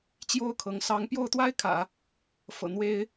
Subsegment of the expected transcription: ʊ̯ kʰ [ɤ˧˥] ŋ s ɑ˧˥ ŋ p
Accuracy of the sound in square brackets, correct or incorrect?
correct